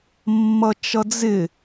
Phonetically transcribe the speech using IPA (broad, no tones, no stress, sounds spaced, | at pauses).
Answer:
mː ʌ t͡ʃ ʌ d͡z ɪ